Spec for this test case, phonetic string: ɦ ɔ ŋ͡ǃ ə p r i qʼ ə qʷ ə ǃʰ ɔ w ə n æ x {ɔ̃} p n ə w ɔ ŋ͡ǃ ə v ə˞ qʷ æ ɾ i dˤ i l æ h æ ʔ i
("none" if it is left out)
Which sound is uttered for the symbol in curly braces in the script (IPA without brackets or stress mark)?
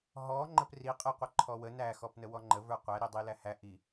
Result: ɔ